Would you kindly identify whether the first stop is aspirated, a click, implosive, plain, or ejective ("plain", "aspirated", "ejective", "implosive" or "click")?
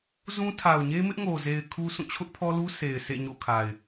aspirated